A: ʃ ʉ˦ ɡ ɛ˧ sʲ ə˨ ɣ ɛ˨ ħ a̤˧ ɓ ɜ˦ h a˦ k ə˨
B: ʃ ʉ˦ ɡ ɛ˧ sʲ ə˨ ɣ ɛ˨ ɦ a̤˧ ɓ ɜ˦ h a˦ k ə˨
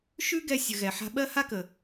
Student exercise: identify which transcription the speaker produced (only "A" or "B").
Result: A